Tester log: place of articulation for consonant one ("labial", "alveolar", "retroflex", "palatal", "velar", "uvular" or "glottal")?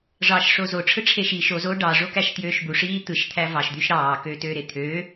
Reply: retroflex